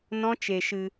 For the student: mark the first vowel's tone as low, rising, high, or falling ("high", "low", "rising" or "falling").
high